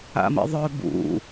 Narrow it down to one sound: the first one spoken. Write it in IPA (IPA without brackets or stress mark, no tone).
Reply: a̰